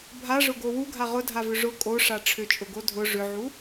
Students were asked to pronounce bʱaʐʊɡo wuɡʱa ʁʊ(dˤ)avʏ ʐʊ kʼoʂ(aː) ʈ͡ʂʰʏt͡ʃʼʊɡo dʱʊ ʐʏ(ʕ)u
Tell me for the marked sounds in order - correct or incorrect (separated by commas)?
incorrect, incorrect, correct